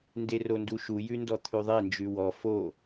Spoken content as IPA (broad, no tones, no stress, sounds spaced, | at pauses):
n d e r o n d u ʃ u j ʉ n d ɔ t̪ʰ ʉ ðˤ e n d͡ʒ ʉ w ɔ f o